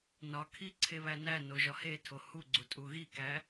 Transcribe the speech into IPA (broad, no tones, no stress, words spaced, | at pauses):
nɒkʰi ǀʰeβænæno ʒɒhetʰo huɡ͡ǀu tʼuɣikæ